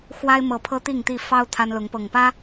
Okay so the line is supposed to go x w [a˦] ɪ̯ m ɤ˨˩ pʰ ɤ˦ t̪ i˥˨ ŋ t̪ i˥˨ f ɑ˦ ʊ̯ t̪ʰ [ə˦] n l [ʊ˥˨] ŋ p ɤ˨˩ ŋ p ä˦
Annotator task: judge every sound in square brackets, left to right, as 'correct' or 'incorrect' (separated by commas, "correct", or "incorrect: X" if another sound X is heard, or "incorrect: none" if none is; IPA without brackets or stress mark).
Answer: correct, incorrect: a˦, incorrect: ʊ˨˦